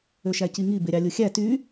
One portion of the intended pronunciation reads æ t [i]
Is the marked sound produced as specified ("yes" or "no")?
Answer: no